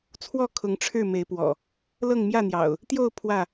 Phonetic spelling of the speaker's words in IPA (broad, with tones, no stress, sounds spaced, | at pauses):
t͡sʰ w ɔ˥˨ kʰ ʊ˨˦ ŋ ʈ͡ʂʰ ɻ̩˥˨ m e˨˦ ɪ̯ p w ɔ̰˨˩ | l ɤ˥˨ ŋ m j ä˥˨ n̪ j ɑ̰˨˩ ʊ̯ | t̪ j o˥˨ ʊ̯ pʰ w ä˥˨